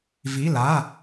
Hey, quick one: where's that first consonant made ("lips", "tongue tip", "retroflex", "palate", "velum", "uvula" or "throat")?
lips